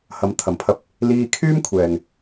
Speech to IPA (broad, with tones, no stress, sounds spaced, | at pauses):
h ɐ˨˥ m t̪ʰ ɐ˨˩ m pʰ ɐ˧ p̚ | l iː˧ kʰ yː˥ m kʷʰ ɛː˨ ŋ